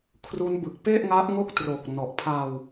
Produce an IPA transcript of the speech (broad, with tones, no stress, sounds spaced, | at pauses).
kʰ r u˦˥ n b ɯ˨˩ k̚ p e˥˩ ʔ ŋ a˦˥ ʔ ŋ o˥˩ k̚ t r o˨˩ k̚ n ɔ˨˩ ʔ pʰ a˧ w